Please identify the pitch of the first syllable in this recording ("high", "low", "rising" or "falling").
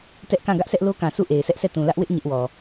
high